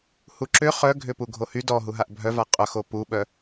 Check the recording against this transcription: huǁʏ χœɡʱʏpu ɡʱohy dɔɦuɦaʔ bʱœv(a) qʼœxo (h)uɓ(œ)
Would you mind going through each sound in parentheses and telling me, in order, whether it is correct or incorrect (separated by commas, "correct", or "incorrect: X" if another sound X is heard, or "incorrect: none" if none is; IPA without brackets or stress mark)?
correct, incorrect: p, correct